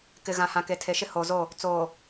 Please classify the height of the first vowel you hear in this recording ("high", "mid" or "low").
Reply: high